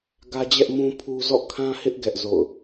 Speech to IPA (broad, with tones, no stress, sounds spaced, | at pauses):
ɡ ä˦ d͡ʑ ɛ˦ ʔ m ũ˦ pʰ u˦ z ɔ̰˦˨ kʰ ã˦ h ɪ˦ ʔ ɡ ɛ˦ ʔ z o̰˦˨ ʊ̯